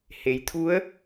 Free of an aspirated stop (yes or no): no